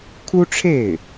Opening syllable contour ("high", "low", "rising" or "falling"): high